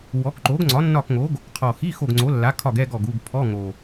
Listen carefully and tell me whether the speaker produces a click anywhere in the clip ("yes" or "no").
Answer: yes